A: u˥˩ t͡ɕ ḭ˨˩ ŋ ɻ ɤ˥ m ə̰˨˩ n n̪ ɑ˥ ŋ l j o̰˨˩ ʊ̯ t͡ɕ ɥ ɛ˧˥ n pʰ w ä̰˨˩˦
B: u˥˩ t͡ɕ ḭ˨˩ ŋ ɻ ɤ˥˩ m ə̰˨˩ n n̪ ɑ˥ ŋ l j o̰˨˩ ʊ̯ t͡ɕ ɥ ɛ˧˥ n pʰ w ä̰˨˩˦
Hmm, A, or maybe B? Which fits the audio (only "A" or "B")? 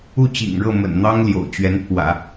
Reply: B